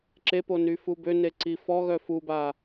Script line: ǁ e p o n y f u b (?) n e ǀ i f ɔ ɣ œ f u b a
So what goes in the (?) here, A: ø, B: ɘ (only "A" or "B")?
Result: A